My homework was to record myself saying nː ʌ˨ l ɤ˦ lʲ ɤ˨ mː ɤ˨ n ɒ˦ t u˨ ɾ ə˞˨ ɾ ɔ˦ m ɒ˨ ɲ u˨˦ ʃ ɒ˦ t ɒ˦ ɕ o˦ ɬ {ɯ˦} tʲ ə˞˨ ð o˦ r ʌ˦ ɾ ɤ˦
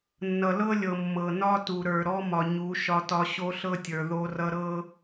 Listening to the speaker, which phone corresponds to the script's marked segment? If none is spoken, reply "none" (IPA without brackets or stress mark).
ɤ˦